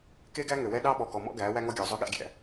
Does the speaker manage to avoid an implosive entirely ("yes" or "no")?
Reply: no